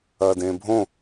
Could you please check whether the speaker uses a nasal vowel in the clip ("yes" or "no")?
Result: yes